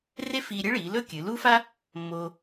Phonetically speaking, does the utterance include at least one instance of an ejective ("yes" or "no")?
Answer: no